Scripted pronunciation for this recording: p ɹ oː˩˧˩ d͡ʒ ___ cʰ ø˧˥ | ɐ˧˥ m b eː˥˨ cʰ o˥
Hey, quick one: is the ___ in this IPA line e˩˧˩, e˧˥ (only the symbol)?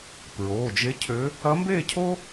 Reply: e˧˥